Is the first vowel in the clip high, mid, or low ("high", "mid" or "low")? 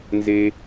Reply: mid